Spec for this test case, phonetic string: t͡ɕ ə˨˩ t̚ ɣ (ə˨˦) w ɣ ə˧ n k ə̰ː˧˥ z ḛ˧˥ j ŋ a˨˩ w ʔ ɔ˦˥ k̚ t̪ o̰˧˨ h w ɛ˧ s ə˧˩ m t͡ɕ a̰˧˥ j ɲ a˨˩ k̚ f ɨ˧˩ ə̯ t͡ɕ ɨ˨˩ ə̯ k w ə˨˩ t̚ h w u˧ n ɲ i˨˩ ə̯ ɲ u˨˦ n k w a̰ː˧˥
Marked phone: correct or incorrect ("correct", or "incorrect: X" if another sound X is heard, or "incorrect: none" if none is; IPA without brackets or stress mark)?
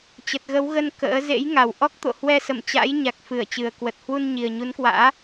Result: correct